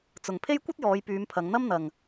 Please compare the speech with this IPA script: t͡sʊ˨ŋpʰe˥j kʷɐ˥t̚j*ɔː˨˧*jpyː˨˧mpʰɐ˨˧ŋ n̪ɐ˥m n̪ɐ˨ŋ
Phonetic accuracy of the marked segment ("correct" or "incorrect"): correct